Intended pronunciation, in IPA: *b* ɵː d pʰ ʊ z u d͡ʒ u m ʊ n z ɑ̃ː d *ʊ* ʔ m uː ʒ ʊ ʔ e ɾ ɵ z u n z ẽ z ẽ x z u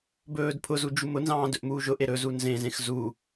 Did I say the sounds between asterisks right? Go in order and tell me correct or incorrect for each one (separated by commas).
correct, incorrect